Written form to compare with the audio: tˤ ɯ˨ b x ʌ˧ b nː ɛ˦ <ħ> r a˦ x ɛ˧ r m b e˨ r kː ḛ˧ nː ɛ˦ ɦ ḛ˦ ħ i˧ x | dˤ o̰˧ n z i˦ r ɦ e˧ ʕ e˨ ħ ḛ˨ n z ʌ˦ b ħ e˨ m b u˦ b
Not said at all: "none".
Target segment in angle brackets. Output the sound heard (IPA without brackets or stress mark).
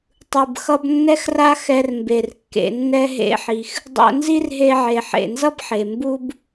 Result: x